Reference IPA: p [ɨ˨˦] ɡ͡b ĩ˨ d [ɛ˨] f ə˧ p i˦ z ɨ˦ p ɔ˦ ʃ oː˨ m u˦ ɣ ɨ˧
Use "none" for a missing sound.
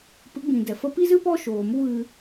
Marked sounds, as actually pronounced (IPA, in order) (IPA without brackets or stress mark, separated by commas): ɨ˨˦, ɛ˨